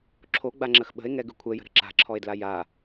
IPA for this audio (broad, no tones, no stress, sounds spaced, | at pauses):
ǁʰ o ɡ͡b a ŋ͡ǁ ə x ɓ ə̤ e̯ ŋ ɛ ɡ ʉ kʷʰ ɛ j ə̤ ɾ ə̤ ǁ a̤ ǁʰ ɔ e̯ d l a j a